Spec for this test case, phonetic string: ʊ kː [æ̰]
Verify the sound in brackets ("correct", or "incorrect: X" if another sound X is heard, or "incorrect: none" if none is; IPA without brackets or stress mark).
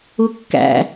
correct